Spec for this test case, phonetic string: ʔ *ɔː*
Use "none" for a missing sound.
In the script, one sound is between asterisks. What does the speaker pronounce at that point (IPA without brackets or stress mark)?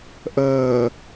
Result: əː